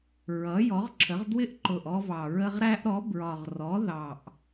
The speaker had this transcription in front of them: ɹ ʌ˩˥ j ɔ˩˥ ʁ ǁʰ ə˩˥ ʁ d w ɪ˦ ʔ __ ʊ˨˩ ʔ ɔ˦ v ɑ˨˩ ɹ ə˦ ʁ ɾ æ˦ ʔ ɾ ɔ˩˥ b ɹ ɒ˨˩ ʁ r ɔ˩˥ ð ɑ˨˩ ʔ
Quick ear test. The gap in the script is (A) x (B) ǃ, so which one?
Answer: B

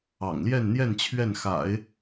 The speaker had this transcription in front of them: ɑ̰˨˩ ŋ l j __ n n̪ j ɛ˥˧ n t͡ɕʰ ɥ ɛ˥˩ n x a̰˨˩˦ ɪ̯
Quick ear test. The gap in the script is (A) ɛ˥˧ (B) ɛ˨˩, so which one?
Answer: A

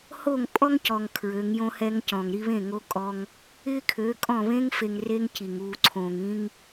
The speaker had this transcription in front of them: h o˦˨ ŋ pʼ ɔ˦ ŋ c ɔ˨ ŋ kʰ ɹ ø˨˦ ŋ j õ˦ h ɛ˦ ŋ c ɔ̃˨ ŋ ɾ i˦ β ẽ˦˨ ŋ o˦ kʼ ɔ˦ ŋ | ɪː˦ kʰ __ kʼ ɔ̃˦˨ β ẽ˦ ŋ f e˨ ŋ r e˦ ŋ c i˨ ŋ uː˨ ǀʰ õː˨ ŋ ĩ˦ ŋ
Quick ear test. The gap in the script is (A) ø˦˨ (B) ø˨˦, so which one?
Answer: B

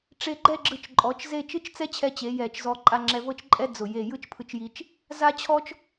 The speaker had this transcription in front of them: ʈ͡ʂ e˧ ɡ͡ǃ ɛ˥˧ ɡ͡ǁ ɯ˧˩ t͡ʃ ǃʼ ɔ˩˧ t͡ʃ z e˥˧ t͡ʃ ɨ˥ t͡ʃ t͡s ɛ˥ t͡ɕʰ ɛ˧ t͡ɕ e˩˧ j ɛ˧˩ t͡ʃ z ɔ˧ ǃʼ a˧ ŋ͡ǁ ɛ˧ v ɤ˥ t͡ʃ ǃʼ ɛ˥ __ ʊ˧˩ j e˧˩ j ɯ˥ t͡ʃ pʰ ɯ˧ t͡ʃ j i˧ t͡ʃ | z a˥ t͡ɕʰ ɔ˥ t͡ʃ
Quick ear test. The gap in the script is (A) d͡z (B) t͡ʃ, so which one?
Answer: A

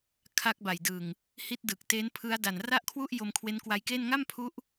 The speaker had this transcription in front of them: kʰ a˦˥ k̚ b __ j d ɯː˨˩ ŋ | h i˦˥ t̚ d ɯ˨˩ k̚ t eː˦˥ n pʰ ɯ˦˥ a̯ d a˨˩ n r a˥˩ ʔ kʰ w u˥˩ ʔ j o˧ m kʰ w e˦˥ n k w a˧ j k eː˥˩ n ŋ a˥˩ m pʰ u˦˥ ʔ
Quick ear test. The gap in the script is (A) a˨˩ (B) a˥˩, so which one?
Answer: A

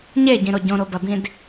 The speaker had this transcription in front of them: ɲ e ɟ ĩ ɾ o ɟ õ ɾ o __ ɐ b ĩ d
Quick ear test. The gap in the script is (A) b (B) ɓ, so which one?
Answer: A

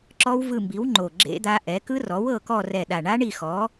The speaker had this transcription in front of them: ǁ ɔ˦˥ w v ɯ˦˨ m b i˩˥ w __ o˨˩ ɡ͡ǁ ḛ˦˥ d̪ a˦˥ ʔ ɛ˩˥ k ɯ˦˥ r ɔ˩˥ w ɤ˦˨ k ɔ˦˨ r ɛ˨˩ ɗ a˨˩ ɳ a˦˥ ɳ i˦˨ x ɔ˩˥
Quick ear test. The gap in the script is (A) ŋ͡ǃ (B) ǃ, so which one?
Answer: A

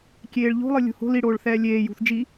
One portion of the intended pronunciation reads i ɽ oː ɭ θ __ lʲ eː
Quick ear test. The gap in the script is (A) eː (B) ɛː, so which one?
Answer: B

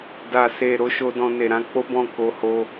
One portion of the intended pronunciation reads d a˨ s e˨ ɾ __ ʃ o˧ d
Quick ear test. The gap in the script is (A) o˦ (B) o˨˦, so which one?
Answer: B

